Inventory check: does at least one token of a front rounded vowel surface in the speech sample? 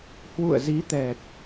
no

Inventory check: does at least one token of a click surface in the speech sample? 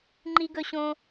yes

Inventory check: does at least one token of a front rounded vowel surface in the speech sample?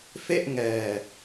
no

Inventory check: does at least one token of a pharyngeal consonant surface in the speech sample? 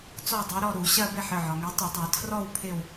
yes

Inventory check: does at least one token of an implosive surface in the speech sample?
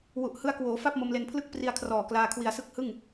no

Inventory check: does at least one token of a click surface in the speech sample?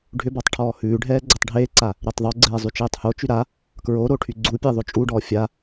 yes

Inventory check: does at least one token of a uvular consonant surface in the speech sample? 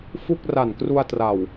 no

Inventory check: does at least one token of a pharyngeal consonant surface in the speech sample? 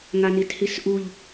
no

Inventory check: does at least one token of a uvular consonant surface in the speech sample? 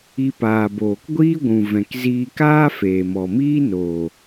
no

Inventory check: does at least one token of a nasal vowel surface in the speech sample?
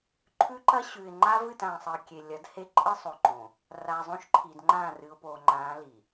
yes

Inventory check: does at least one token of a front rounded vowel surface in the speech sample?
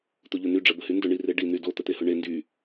yes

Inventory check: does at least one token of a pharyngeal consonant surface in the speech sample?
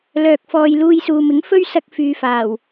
no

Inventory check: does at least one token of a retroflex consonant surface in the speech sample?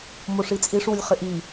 yes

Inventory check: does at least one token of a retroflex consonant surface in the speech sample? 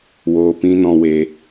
no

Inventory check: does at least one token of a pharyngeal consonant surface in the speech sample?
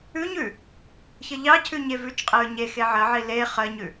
yes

